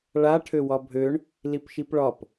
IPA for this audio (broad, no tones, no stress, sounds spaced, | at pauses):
ɭ a ʈʰ ø w ɒ bʱ ø ɳ | l i p ʃ i p ɭ ɒ p